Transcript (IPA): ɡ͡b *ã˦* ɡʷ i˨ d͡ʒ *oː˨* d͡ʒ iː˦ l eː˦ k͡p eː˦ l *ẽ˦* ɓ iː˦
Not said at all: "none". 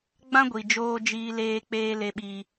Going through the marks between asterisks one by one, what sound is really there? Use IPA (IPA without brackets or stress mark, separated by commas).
ã˦, oː˦, e˦